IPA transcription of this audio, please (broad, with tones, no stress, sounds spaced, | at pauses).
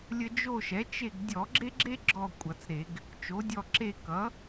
lʲ ə˦ d͡ʒ o˦˨ ʃ ɛ˩˥ t͡ʃ e˦˨ ɡ dʲ ɔ˧˩˧ ɡ͡ǁ e˦ ɡ͡ǁ e˦ ɡ͡ǁ ɔ˦˨ kʷʼ ʌ˧˩˧ t͡s ɾ e˧˩˧ ɡ | t͡ʃ o˩˥ dʲ ɔ˦˨ ǁ e˦˨ k ʌ˩˥